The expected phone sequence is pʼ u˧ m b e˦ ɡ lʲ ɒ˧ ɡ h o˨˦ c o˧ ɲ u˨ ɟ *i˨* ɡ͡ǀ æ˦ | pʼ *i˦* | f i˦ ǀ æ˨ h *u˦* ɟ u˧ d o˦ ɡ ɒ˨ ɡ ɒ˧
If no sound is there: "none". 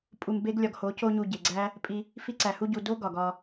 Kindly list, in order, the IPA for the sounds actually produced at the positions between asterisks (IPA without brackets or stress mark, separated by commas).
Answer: e˨, i˧, u˦